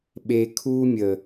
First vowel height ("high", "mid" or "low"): mid